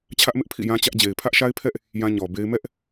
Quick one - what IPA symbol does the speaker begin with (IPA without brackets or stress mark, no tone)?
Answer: t͡ɕʰ